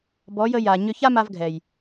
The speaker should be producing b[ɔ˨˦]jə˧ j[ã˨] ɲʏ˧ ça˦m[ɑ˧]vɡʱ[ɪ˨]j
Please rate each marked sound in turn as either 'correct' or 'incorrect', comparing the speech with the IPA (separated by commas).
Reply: correct, incorrect, incorrect, incorrect